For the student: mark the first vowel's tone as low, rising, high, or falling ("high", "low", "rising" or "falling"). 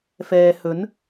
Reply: low